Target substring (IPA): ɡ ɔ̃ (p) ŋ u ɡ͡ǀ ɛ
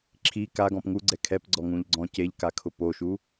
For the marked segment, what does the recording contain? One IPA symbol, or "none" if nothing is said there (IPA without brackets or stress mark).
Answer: p